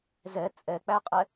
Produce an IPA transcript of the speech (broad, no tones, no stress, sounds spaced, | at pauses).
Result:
z ɛ t͡sʼ ɛ k͡p æ qʼ ɛ